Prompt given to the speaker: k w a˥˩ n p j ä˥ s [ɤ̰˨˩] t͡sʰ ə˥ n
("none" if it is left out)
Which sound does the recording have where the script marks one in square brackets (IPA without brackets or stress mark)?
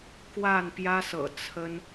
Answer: ɤ̰˨˩